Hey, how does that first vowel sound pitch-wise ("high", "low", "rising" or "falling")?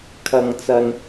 low